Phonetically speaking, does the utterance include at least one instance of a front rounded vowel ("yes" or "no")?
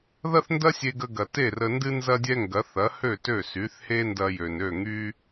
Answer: yes